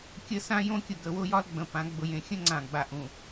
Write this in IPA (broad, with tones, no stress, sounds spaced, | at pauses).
kʲ ə˦ s ã˦ j õ˦ kʲ ʊ˨ ɡ ə˨˦ w ʊ˦ j ɒ˦ l ɡ͡b ə̃˨ p ã˨˦ ɡ͡b ʊ˨ j ẽ˨ xʲ ə̃˦ ŋ͡ǀ ã˨ ɡ͡b a˨ ʔ ũ˨